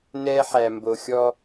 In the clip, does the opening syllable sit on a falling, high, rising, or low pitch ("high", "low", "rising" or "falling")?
high